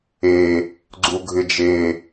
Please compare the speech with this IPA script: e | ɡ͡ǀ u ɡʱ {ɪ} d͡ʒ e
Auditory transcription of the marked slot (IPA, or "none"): ɪ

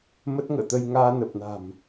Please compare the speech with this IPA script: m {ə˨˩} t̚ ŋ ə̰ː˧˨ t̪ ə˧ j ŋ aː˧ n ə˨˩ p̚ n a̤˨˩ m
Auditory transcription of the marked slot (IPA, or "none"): ə˦˥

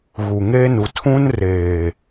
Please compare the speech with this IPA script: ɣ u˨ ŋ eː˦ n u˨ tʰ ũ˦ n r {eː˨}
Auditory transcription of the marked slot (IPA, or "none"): eː˨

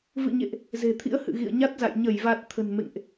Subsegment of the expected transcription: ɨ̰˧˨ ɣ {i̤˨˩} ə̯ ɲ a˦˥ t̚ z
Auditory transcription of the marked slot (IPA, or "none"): ḭ˧˨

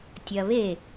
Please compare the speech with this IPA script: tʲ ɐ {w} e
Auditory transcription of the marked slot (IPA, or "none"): β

